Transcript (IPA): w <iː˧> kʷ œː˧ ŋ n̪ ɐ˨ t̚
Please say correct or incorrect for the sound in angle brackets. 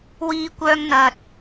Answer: correct